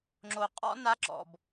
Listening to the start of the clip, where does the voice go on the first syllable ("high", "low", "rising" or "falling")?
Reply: low